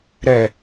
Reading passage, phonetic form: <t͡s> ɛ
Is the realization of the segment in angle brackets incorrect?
yes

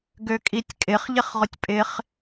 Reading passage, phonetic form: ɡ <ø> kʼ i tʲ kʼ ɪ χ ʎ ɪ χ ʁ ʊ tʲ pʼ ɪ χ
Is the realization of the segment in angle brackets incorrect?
no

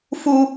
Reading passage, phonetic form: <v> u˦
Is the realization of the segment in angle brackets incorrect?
yes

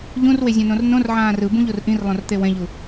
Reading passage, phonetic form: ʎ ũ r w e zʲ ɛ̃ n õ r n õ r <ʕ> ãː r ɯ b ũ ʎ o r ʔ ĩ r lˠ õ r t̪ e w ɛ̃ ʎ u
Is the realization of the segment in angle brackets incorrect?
no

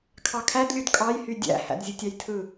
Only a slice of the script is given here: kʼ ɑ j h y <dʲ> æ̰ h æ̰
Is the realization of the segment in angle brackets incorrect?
no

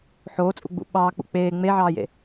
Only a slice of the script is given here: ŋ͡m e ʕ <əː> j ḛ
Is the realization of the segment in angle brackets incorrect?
yes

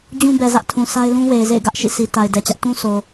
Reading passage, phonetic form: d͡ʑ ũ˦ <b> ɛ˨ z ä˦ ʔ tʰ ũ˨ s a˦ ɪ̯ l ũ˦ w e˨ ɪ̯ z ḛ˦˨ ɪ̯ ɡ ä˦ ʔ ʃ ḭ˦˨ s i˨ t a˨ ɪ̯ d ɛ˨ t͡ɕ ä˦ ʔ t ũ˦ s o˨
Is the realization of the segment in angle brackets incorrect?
no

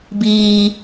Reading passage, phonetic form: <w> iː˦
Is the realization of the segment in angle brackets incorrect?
yes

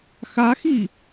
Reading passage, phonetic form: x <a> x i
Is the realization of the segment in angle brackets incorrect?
no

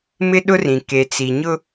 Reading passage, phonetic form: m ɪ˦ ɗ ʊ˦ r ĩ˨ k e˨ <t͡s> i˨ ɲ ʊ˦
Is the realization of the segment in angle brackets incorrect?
no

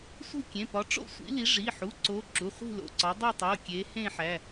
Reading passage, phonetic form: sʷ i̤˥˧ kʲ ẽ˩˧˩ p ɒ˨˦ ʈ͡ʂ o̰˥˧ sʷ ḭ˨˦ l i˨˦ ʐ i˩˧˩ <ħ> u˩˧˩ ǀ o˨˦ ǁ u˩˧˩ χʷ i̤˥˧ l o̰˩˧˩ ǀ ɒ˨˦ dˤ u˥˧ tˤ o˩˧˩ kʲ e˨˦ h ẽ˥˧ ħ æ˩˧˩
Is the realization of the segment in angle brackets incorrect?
no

